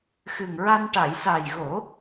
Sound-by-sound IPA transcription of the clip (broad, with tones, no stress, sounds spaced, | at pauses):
x ɨ˨˩ ŋ ɹ a˧ n ʈ a˨˩˨ j s a˨˩ j ɣ o˨˩˦